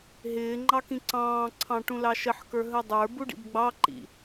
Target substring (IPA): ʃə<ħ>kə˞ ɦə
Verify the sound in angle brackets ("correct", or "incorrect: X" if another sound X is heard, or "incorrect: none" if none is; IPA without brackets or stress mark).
correct